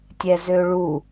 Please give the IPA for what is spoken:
tʲɛzøɭu

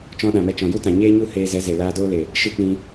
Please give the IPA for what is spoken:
t͡ʃɔ̃˧ɗã˨mɛ˧ t͡ʃɔ̃˨ju˦tã˨ɲeː˦ ɲu˦heː˧zɛ˨˦ze˨ laː˧doː˦le˨ | ʃɨ˦k͡pĩ˧

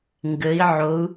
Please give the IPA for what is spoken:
ŋɡə˩˧i̯ʕo˩˧u̯

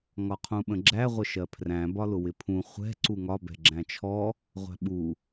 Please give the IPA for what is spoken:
ŋɒqʰũɓə̃ɡ͡ǁæ ʁʷəʃɜpʰræ̃ bɒlʊwɪpʰũ χʷɛ̤ ǀuŋɒ bɛ̤ɡ͡ǁæ̃t͡ʃʰɔ | ʁʷæ̤ɓu

